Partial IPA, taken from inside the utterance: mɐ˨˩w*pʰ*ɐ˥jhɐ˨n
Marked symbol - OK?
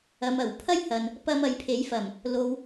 yes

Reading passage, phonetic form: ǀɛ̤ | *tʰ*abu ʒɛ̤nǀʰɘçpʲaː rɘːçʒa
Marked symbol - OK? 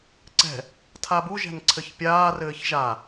yes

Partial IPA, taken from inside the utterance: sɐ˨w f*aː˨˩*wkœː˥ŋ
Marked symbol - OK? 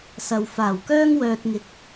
yes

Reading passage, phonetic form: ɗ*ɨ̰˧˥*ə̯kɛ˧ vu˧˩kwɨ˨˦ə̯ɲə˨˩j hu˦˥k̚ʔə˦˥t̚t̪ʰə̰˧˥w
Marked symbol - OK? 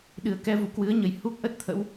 no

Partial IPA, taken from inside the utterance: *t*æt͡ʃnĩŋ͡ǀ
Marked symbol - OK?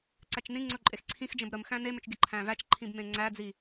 no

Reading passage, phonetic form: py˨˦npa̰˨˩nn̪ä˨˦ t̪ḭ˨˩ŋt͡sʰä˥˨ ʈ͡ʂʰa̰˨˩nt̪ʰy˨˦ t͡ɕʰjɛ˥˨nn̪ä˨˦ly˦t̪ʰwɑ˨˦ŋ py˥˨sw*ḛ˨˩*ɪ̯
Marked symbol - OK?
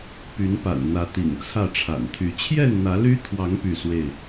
no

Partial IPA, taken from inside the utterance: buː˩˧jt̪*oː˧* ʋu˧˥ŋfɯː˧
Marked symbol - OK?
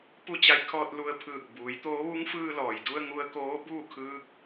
no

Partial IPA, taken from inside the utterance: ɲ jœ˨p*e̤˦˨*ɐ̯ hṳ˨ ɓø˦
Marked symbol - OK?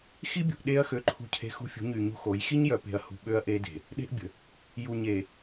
no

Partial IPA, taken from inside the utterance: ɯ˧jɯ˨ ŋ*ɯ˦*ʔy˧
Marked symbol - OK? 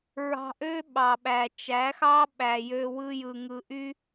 no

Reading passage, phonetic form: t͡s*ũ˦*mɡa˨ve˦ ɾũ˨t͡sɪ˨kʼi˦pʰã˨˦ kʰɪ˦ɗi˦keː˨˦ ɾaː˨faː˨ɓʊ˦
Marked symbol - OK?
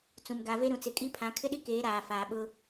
no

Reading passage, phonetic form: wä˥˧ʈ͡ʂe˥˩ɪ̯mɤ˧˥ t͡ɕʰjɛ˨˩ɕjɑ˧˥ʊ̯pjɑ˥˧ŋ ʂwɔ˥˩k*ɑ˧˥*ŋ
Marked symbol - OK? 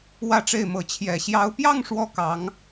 yes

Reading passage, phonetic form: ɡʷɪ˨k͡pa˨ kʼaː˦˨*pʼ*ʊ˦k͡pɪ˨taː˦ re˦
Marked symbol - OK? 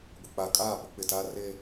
no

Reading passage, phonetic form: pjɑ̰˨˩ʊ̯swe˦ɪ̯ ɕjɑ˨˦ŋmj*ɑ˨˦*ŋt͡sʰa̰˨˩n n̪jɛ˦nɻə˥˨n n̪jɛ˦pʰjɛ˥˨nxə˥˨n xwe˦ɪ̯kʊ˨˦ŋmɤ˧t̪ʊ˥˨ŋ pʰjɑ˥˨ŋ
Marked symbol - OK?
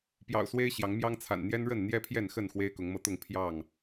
no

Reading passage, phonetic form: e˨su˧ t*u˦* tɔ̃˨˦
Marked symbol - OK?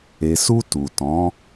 no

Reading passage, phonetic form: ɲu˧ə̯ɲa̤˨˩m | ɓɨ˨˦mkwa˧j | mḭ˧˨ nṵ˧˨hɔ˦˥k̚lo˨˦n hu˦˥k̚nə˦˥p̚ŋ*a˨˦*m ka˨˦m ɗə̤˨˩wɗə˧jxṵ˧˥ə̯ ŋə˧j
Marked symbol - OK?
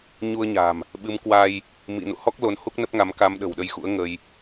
yes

